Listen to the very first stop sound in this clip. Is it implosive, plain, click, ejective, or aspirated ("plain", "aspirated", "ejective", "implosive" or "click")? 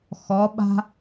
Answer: implosive